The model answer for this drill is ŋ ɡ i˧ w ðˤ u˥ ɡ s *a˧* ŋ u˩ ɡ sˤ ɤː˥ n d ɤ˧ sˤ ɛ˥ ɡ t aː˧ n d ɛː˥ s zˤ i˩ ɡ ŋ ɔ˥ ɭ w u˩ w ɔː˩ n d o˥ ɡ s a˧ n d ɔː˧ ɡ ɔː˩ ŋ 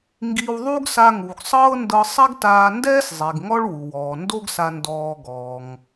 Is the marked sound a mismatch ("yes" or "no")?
no